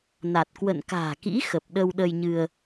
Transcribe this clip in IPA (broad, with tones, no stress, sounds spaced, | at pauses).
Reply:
n a˨˩ t̚ k w ə̰˧˨ n k a̤ː˨˩ k ḭ˧˥ x ə˨˩ p̚ ɗ ə˧ w ɗ ə˧ j ɲ ɨ˧ ə̯